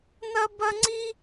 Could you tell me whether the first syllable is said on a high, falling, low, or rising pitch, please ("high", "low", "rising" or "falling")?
high